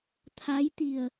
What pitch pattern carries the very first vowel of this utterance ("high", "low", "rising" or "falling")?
rising